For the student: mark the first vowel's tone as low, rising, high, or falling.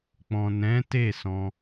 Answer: low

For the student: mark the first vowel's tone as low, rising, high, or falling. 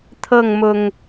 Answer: falling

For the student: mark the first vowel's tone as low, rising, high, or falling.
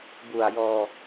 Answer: low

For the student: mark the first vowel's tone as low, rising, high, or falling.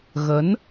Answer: rising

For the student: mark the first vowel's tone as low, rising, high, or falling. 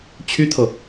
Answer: high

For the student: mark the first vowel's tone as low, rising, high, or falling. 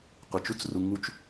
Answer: low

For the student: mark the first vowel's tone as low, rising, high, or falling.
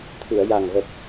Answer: low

